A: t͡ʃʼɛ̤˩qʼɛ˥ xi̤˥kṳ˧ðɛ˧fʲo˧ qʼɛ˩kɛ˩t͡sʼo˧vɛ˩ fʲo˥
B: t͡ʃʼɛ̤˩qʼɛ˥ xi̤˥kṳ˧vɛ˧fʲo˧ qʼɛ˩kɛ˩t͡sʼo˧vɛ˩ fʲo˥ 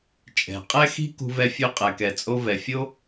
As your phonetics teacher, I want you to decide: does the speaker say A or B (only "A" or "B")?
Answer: B